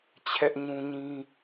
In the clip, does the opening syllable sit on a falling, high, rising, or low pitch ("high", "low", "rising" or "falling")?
high